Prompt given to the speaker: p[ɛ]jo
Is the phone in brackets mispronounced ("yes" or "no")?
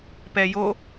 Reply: no